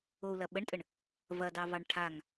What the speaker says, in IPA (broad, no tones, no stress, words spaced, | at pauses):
ou̯lɐɓəɳtʼəɳ | vɐdɑvɑɳ ʈʰaŋ